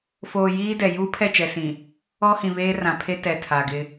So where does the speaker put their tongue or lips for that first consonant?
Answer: lips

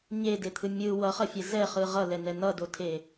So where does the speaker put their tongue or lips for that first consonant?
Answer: palate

